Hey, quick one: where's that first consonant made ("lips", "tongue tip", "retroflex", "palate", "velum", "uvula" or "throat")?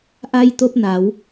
throat